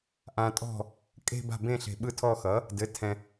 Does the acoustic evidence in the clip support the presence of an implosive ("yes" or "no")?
yes